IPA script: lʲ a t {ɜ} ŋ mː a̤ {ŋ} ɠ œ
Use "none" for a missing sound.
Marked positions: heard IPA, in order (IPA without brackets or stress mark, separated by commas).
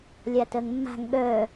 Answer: ɜ, ŋ